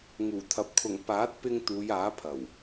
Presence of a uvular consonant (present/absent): absent